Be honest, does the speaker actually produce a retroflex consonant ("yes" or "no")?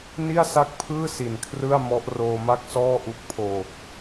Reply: no